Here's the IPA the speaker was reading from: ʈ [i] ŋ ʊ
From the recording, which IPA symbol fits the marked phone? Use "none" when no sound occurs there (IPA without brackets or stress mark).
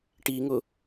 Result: i